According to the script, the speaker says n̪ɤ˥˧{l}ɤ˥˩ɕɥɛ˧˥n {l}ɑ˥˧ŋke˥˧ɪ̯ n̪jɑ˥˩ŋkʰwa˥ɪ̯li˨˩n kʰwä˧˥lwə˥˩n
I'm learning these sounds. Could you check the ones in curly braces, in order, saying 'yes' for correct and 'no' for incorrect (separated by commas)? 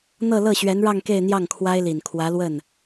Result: yes, no